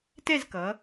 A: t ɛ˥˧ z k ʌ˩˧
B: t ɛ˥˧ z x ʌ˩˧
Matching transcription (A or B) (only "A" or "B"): A